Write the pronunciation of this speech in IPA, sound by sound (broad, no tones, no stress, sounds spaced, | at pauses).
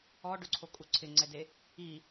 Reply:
ɔ ɖ ʊ ǀʰ o kʼ u ǀʰ ɪ ŋ͡ǀ ɛ d e | i